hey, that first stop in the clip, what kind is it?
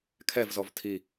aspirated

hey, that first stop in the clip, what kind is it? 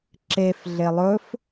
click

